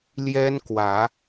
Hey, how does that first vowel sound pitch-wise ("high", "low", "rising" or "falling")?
high